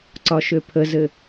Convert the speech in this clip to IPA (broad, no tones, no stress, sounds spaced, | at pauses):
ǀ ɒ ʃ ø pʰ ə z ɘ